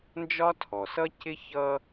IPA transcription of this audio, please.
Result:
n d͡ʒ ɒ˥ tʰ ɔ˩ s ʌ˥ c ɪ˥ ç ʌ˦

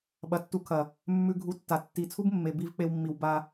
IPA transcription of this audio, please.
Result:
ɓ ɐ˨ tː u˧ kʰ ɐ˨ | mː ʉ˧ ɡʱ u˧ tː a˨ tː i˨˦ t͡sʰ u˦ b mː e˨ b i˧ v k͡p e˧ w mː i˨ w b a˧

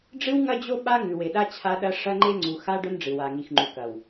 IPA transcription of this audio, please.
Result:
ɖ͡ʐ ɨ˦ w ŋ ɐ˦ d͡ʑ o˦ ɓ a˦ ŋ ʉ˨ w e˨ ɗ a˦ t͡ɕʰ a˦ ɗ ɐ˦ ʂ ɐ˦ ŋ͡ǃ e˦ ŋ͡ǀ u˨ x a˦ ɖ ɵ˦ n ɖ͡ʐ ɨ˨ w a˨ ŋ i˨ x ŋ͡ǃ u˨ k ɐ˨ w

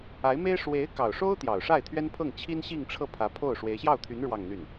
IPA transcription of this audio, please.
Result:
a˧˥ ɪ̯ m e˥ ɪ̯ ʂ w e˧˥ ɪ̯ k ɑ˨˩ ʊ̯ ʂ o˥ ʊ̯ t̪ j ɑ˨˩ ʊ̯ ʂ a˥˩ ɪ̯ t̪ʰ ɥ ɛ˥ n pʰ ɤ˥˩ ŋ t͡ɕʰ i˥ n ɕ i˥˧ ŋ ʈ͡ʂʰ ɤ˥˩ pʰ ä˧˥ pʰ o˥˩ ʊ̯ ʂ w e˧˥ ɪ̯ ɕ j ɑ˥˩ ʊ̯ t̪ʰ y˧˥ n ɻ w ɑ˥˧ ŋ n̪ y˥˩ n

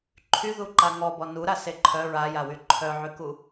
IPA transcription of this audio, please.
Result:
ǃʰ y ð u ǃ a ŋ ɔ b ɔ n u ɾ a s e ǃʰ œ ɹ a j a w y ǃʰ œ ʕ y k u

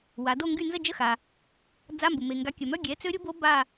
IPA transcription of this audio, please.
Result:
w a˩˧ d o˦˨ ŋ ɡ y˦˨ n z ə˦˨ d͡ʒ ə˧˥˧ x a˩ | d͡z a˧˥˧ m b u˩ m e˩ ŋ ɡ a˩˥ kʲ œ˩ m œ˧˥˧ ɡʲ ɛ˩˥ t͡s ø˧˥ ɾʲ u˧˥ b o˧˥ b a˦˨

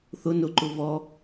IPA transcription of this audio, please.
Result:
θ ʊ n ʊ ǃ ʊ v ɔ

